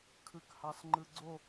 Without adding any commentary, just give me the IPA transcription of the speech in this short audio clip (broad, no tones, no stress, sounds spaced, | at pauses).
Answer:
kʰ ɯ k h ɑ s ŋ͡ǃ ɯ ɡ͡ǀ o